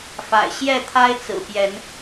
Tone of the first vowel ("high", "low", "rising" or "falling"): low